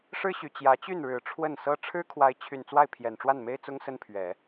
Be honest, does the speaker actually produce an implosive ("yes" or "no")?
no